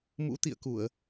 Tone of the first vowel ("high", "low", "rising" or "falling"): rising